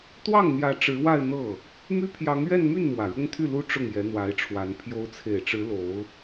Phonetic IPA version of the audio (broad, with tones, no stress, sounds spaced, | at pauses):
t̪ w ɑ˥˩ ŋ n̪ j ä˧˥ ʈ͡ʂ ɻ̩˧˥ w a˥˧ ɪ̯ n̪ ɤ˥˩ | m y˥ pʰ j ɑ˧˥ ŋ ɥ ɛ˥˧ n m y˥˩ n m w ä˨˩ ɻ ʊ˥ ŋ t̪ʰ y˥˩ l u˥ ʈ͡ʂ ʊ˥˩ ŋ j ɛ˧˥ n̪ w a˧˥ ɪ̯ ʈ͡ʂʰ w a˧˥ n pʰ j o˧˥ ʊ̯ t͡sʰ e˨˩ ɪ̯ ʈ͡ʂ ɻ̩˧˥ l o˧˥ ʊ̯